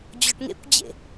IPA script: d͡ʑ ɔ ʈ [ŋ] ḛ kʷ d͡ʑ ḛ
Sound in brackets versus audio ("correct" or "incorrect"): correct